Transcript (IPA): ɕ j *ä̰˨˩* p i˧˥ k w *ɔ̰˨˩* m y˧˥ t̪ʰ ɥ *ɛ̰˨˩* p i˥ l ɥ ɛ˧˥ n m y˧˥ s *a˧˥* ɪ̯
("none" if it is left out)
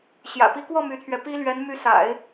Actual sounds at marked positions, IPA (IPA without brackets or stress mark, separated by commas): ä̰˨˩, ɔ˥˩, ɛ˧, a̰˨˩˦